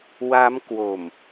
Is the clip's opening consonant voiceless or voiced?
voiced